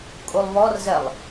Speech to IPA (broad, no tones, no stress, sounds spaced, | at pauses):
kʼ u lˠ β ɔ r z ɛ lˠ